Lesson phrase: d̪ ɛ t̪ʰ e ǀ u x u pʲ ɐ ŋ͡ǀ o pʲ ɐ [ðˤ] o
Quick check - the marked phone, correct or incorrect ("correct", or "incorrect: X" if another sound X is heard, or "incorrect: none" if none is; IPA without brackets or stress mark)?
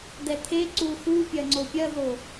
incorrect: ð